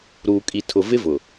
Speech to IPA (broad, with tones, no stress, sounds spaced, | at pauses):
ɾ uː˨ kʼ i˨ tʰ ʊ˨ v ɪ˦ v ʊ˨